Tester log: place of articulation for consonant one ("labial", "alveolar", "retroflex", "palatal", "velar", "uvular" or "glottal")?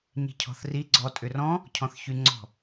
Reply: palatal